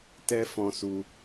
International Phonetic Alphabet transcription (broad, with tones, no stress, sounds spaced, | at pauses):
t ɛ˦ f ɔ̃˧ s u˧